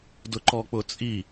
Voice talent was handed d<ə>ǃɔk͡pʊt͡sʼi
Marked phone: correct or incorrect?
incorrect: ʊ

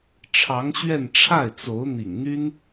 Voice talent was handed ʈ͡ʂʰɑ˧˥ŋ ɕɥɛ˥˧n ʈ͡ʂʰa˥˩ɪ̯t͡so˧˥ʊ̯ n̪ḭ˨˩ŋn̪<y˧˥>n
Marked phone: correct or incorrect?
incorrect: y˥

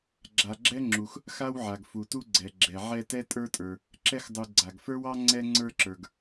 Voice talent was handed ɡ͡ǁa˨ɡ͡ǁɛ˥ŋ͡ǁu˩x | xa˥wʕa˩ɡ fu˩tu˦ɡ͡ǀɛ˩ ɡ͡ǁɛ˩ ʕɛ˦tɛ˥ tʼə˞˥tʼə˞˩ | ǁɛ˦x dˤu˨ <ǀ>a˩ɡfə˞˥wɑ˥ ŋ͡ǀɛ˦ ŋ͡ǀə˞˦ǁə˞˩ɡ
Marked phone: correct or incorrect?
incorrect: ɡ͡ǀ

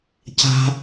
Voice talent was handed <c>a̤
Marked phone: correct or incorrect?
correct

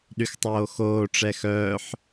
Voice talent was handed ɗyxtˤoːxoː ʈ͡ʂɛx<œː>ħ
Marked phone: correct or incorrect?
correct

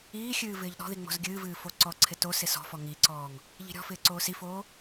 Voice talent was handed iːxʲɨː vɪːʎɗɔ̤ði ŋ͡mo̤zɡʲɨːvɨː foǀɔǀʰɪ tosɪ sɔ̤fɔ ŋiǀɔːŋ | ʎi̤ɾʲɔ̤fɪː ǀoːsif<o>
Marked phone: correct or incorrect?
incorrect: oː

